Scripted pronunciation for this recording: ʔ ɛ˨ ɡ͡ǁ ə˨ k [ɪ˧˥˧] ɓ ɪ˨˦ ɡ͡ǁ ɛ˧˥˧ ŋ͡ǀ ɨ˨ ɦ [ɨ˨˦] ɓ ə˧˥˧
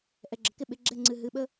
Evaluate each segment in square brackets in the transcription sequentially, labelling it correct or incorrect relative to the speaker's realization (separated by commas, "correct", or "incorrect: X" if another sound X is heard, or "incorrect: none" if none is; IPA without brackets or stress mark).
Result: correct, correct